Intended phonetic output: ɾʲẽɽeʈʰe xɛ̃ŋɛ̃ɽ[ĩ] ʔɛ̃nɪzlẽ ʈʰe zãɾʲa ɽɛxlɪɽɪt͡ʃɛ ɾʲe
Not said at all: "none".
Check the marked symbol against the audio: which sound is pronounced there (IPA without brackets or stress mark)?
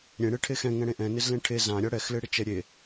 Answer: ẽ